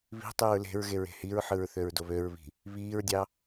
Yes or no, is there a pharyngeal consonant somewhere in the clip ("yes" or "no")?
yes